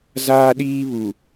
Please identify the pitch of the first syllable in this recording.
high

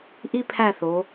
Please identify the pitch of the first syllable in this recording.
high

